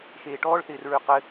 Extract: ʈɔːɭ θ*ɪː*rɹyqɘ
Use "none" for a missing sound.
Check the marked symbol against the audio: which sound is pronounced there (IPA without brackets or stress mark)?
ɪː